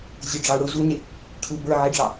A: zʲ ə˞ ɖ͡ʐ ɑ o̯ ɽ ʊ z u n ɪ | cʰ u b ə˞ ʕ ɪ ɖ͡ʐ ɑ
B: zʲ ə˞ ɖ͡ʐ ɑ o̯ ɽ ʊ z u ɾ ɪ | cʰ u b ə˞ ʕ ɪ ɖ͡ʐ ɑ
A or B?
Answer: A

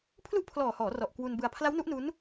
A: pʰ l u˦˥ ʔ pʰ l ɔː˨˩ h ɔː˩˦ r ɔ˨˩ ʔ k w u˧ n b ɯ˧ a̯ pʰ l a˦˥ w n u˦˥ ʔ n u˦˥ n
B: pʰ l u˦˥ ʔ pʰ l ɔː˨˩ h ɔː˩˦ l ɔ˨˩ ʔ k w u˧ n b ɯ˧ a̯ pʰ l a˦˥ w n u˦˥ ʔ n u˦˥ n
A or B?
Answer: A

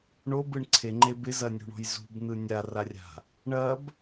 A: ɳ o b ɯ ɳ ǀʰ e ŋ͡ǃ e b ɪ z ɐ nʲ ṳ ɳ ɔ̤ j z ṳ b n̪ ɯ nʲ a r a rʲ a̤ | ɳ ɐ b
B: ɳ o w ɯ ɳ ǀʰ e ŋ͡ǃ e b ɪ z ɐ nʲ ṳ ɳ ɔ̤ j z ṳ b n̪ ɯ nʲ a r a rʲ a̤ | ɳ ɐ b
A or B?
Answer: A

